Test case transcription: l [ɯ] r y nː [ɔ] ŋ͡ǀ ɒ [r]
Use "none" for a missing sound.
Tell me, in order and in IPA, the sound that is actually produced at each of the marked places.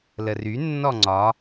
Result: ə, ɔ, none

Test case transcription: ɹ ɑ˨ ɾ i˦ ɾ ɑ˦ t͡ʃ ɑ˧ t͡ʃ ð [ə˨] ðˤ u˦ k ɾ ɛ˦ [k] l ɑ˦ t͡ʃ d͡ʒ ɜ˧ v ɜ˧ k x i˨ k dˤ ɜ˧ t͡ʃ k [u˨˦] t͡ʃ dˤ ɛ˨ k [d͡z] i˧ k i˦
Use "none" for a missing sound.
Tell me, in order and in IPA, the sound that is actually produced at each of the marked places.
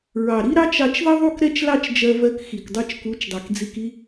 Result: ə˦, t͡ʃ, u˨˦, d͡z

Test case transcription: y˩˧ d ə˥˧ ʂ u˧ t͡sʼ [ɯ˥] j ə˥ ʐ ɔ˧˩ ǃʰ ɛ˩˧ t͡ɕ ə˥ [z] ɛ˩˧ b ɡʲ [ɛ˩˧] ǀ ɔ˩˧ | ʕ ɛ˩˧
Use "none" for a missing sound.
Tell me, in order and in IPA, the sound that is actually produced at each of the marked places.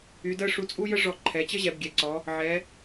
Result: u˥, ʑ, ɛ˩˧

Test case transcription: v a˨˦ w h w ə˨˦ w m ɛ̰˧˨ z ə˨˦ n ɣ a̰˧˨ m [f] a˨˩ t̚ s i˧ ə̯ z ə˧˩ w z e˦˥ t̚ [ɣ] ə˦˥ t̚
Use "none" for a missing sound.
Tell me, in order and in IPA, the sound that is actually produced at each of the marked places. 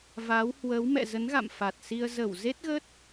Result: f, ɣ

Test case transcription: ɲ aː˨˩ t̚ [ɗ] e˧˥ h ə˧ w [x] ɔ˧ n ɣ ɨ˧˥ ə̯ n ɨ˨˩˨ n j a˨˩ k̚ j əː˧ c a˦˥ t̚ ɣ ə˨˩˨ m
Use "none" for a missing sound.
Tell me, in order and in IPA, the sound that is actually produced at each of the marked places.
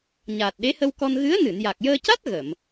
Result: ɗ, k

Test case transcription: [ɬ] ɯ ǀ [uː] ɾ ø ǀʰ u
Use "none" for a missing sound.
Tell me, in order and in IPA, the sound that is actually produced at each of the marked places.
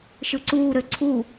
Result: ʃ, uː

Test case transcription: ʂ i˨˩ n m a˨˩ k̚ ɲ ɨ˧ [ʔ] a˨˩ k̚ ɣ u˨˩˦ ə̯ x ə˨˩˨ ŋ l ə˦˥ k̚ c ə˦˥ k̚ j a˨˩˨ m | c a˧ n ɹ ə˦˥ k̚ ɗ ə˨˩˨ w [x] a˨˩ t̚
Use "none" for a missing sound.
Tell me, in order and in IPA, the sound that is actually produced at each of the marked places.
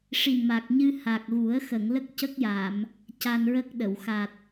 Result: h, x

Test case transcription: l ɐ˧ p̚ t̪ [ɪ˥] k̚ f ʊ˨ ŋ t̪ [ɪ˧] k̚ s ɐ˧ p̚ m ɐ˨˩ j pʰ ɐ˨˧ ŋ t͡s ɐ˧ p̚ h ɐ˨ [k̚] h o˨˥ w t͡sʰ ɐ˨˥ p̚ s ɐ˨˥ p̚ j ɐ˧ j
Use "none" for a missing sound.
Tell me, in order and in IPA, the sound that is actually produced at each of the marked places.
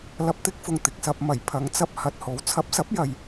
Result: ɪ˥, ɪ˨, t̚

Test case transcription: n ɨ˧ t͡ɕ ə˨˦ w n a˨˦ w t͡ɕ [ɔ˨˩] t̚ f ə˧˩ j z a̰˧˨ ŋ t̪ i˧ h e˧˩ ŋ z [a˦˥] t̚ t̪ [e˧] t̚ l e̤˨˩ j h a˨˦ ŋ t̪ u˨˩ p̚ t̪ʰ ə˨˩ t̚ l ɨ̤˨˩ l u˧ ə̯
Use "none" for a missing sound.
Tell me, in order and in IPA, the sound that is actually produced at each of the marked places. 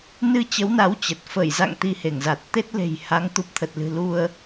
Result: ə˨˩, a˨˩, e˦˥

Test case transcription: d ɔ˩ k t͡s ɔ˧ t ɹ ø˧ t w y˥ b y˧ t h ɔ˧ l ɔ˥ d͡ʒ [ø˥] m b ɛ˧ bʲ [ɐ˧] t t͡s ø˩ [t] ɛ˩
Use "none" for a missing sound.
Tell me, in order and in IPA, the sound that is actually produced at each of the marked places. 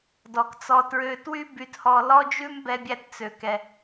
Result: ʉ˥, æ˧, k

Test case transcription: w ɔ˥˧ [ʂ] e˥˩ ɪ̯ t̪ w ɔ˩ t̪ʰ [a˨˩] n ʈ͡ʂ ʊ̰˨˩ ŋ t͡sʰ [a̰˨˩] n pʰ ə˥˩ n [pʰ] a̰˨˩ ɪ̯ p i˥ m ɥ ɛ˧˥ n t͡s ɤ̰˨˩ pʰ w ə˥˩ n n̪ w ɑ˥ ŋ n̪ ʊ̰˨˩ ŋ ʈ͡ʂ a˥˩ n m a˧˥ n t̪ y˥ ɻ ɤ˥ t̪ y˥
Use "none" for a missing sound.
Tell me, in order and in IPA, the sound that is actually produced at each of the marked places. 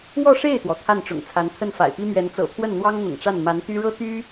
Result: ʂ, a˥˩, a˧˥, f

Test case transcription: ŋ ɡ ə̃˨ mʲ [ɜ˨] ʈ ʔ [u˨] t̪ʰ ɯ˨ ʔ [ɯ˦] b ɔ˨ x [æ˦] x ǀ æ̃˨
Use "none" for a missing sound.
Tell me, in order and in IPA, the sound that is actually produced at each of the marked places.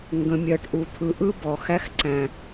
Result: ɜ˨, u˨, ɯ˦, æ˦

